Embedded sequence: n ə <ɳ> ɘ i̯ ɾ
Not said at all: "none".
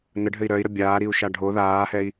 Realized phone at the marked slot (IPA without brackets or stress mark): ɖʱ